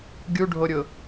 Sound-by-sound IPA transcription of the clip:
ɡʲuɖʱoɾʲʊ

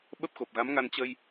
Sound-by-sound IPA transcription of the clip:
ɓə˦˥p̚xo˨˩p̚ɣa˨˦mŋa˧n t͡ɕə˧j

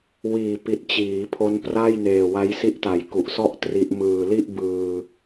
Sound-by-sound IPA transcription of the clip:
wiː˨˩pi˨˩t̚ t͡ɕiː˩˦pʰo˦˥npra˥˩j neː˨˩wa˦˥jsi˦˥ʔta˩˦j ku˨˩ʔsɔ˥˩ʔ tri˦˥ʔ mɯː˨˩li˥˩ʔbɯː˧

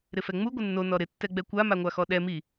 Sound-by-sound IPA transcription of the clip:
ɾɪfɛŋ͡mu ɡʷɪnːo nɔɾɪ tːɛɡ͡bɛkʷa maŋʷaxɔɗɛ mi

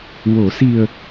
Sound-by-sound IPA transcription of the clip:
wo˨˩˨si˨˩ə̯

